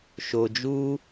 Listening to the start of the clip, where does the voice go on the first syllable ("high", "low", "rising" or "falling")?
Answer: low